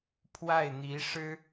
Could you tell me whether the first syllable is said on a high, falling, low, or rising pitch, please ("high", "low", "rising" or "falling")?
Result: falling